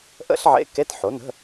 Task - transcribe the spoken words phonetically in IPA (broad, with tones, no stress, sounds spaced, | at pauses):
ʔ ə̰˥ ɬ ʕ ḛ˧˥˧ k e˧˥˧ t ħ o˩˥ n ə̤˧˥˧